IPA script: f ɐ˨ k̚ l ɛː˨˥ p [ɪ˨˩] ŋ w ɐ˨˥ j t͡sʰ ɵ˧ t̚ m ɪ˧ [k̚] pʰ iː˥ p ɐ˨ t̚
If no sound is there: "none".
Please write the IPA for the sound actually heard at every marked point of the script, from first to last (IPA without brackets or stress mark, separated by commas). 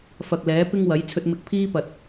ɪ˥, k̚